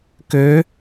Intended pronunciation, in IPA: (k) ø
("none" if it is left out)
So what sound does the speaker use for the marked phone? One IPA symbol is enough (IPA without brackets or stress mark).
k